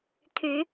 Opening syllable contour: rising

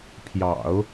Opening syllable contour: low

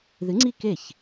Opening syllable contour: rising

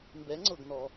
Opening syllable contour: rising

